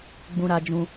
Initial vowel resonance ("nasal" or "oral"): nasal